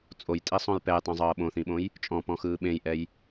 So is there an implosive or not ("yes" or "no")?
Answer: yes